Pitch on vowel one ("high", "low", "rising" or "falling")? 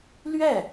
falling